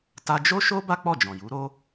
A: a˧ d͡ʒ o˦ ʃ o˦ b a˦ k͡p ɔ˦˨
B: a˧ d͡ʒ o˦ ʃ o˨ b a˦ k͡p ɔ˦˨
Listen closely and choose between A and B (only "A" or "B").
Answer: A